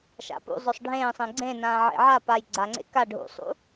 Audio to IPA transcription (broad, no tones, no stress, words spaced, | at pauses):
ʃa̰pṵzˤɵsˤ ɖʱẽːsˤẽ ɡ͡ǀẽnãː ʕḛʕapaj ɡ͡ǀaŋ͡ǀḛ ka ɖʱṵsˤṵ